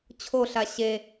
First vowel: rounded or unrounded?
rounded